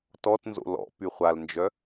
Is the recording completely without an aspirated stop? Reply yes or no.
yes